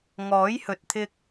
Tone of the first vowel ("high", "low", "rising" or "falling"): rising